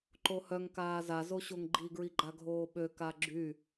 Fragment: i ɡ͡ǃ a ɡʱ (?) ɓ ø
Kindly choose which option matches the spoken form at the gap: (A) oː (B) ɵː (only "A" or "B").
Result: A